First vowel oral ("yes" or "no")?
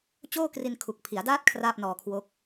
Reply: yes